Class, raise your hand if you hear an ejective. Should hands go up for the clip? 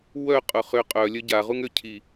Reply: yes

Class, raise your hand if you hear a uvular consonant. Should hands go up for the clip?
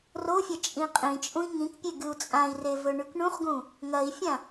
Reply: yes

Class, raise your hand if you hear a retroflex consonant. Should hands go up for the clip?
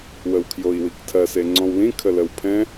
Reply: no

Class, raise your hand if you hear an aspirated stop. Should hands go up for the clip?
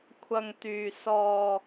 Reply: yes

